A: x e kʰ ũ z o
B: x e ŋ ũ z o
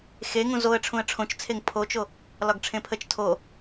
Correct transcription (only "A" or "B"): B